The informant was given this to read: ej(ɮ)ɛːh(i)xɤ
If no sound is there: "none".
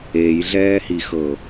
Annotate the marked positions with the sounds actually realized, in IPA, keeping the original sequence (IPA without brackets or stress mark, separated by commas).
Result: ɮ, i